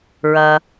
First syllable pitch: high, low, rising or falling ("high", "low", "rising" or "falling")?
low